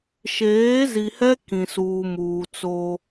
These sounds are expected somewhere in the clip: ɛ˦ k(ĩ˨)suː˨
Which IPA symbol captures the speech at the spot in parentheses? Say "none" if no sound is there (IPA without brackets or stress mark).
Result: ĩ˨